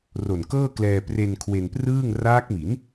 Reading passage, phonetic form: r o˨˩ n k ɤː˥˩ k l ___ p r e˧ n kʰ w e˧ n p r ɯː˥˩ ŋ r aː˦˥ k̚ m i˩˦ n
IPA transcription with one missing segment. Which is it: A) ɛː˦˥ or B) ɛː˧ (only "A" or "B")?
B